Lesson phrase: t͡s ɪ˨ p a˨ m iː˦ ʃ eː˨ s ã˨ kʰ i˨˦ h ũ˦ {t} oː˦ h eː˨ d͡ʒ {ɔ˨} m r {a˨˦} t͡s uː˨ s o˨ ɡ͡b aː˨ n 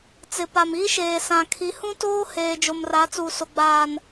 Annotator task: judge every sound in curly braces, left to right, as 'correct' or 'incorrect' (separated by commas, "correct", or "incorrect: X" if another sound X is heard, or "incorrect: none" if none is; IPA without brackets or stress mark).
correct, incorrect: o˨, correct